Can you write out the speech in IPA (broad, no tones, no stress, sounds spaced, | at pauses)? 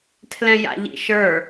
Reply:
tʰ l ɛ̃ j a̰ ʎ ḭ ʃ ə˞